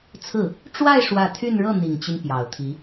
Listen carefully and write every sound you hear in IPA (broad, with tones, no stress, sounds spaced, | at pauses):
t͡sʰ ɹ̩˥˩ | ʈ͡ʂ w a˥˧ ɪ̯ ʂ w ä˥˧ t̪ʰ y˥˧ n ɻ ɤ˥˩ n̪ i˨˩ ŋ t͡ɕ y˦ n p j ɑ˨˩ ʊ̯ t̪ʰ i˧˥